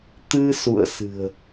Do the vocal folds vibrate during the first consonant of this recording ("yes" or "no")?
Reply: no